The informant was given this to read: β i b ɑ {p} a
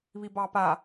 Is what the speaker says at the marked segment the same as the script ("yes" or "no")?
yes